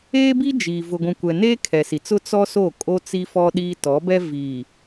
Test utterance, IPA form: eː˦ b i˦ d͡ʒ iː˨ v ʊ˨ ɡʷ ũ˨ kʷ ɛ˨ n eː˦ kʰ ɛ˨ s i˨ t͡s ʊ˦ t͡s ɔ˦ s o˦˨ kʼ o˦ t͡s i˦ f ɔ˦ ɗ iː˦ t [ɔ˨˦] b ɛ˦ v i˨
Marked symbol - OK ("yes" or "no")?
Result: yes